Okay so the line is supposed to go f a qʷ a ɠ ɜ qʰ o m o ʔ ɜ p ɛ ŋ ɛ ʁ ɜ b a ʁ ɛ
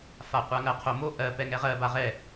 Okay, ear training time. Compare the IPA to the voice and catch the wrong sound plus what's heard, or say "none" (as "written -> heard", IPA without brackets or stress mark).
ɠ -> ŋ